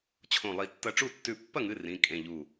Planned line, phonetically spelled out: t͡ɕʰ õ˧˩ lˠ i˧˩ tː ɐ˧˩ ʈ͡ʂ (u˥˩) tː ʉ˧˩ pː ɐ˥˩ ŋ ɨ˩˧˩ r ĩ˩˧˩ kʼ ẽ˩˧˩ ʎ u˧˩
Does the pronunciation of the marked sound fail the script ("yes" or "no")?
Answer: no